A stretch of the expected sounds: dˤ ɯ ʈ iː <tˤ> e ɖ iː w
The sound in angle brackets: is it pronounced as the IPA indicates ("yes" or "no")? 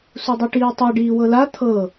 yes